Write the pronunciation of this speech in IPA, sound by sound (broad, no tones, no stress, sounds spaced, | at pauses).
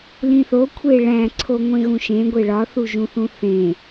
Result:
l ĩ θ o kʷʰ e ɭ æ̃ ǀʰ o ŋʷ ẽ ɣ ũ ʃ ẽ ɡʷ e ɭ ɒ θ u ʒ ũ θ ũ θ ẽ